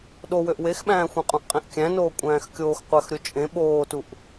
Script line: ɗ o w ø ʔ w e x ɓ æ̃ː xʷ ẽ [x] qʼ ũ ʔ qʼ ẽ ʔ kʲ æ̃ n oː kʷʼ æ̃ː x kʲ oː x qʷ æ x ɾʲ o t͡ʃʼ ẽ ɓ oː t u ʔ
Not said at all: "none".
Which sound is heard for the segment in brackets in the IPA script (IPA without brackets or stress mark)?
none